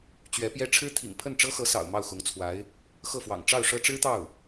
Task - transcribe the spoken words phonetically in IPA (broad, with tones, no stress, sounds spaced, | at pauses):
t͡ɕ ɥ ɛ˧˥ p j ɛ˥ ʈ͡ʂʰ ɻ̩˥ t̪ʰ ḭ˨˩ ŋ pʰ ə˥˩ n ʈ͡ʂ ɤ˥ x ɤ˧˥ s ɑ̰˨˩ ʊ̯ m ɑ˥˩ ʊ̯ x ʊ˧˥ ŋ t͡sʰ w a˧˥ ɪ̯ | x ɤ˥˩ f w ɑ̰˨˩ ŋ ʈ͡ʂ ɑ˥˩ ʊ̯ ʂ ɤ˥ ʈ͡ʂ ɻ̩˥ t̪ ɑ˥˩ ʊ̯